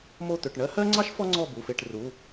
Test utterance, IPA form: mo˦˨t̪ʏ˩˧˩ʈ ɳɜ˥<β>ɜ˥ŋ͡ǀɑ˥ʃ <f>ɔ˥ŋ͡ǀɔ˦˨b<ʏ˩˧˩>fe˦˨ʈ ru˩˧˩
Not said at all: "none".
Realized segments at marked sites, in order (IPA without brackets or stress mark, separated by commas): h, f, u˩˧˩